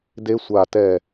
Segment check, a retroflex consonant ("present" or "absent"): absent